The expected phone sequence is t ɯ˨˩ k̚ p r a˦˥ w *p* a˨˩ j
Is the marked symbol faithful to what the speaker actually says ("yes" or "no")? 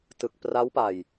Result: yes